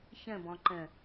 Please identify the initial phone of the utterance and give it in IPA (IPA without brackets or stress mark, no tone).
ç